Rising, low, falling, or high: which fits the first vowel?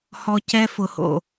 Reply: high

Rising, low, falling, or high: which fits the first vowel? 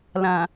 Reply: low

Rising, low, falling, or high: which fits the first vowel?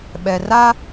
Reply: low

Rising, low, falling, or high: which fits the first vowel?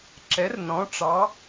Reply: rising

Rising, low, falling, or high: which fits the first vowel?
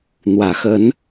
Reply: low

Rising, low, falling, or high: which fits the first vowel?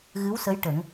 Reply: rising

